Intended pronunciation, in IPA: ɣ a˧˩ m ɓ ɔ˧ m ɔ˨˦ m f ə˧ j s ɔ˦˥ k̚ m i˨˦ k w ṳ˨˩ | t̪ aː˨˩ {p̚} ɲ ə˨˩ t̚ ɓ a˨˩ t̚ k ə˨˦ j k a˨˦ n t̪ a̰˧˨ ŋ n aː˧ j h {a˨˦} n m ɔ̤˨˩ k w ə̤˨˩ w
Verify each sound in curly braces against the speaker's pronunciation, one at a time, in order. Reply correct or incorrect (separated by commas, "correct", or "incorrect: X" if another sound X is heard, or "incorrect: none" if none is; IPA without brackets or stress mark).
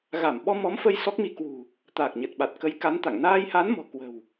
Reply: incorrect: k̚, correct